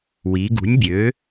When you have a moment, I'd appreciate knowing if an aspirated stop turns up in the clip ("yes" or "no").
no